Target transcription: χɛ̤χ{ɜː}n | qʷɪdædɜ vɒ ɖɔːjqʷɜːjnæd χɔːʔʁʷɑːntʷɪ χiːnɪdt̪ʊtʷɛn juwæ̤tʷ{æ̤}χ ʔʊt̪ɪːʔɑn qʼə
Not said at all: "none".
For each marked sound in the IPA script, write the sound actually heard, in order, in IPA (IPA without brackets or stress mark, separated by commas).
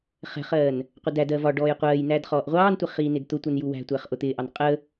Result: ɜː, æ